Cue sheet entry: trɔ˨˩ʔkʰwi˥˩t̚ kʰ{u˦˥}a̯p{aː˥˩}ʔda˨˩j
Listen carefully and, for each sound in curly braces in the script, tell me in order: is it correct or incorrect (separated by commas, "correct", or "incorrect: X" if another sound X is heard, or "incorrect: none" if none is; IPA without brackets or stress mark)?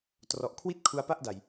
correct, incorrect: a˥˩